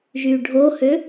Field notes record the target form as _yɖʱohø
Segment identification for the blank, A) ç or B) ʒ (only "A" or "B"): B